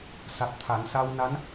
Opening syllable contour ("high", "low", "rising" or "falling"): low